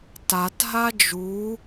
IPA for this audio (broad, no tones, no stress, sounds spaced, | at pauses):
t a t ɦ a d͡ʒ u